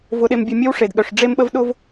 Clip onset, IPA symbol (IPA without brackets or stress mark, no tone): v